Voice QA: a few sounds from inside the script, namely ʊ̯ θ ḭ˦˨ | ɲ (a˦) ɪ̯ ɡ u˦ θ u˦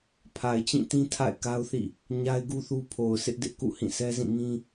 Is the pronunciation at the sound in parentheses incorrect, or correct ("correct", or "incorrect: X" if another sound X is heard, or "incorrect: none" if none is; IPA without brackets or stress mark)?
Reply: correct